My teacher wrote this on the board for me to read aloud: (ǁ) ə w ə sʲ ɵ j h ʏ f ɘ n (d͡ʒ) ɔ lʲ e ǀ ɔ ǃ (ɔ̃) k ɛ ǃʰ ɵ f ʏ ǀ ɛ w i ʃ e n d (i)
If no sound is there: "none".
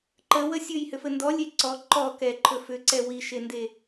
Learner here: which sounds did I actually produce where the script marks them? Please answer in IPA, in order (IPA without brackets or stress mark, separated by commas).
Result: ǃ, d, ɔ, e